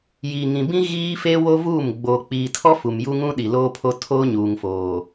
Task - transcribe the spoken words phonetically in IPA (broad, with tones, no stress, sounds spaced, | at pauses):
j iː˨ ŋ ĩ˨ b ĩ˦ ɣ iː˦ f e˦ w o˦ v uː˦˨ m ɡ͡b oː˨ k͡p iː˨ tʰ ɔ˦ f u˨ m j u˦ ŋ ũ˦ ɗ i˨ l oː˦ pʰ o˦ tʰ oː˦ ɲ uː˨ ŋ f oː˨